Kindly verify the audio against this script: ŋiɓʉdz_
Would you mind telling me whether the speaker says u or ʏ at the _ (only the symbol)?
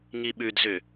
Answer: ʏ